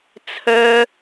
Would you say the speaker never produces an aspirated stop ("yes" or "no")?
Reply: no